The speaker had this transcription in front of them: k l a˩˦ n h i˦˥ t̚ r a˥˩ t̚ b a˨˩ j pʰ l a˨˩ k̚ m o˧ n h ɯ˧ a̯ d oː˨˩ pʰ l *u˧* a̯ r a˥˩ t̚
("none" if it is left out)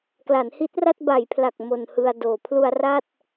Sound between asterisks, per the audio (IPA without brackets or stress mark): u˧